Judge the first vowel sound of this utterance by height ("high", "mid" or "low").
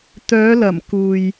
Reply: mid